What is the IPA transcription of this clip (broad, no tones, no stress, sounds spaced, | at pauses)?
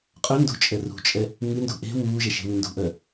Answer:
qʼ œ n d ṳ t͡ʃʼ ɛ r ṳ t͡ʃʼ ɛ | ŋ ɨ n d ṳ ʔ e̤ w uː ʒ ɛ ʃ e̤ w ɨ n d ṳ ʔ œ